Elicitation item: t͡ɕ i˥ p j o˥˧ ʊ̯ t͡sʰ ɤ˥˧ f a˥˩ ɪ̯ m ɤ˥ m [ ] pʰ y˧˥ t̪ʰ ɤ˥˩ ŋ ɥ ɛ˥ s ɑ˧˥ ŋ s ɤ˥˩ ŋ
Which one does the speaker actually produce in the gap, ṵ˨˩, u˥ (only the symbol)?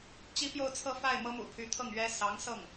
ṵ˨˩